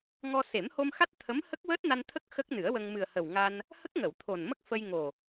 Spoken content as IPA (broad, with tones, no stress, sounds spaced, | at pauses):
ŋ ɔ˧ s e˨˩˦ m h o˧ m x a˦˥ t̚ t̪ʰ ə˧˥ m h ə˦˥ k̚ w əː˦˥ t̚ n a˧ n t̪ʰ ə˦˥ k̚ x ə˦˥ k̚ n ɨ˨˩˦ ə̯ w ə˧ ŋ m ɨ˨˩ ə̯ h ə˨˩ w ŋ a˧ n | h ə˦˥ k̚ ŋ ə˨˩˨ w t̪ʰ o˨˩ n m ə˦˥ k̚ f ə˧ j ŋ o˨˩